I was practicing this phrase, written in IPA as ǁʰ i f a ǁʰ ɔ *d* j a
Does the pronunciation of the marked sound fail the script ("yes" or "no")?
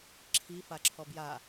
yes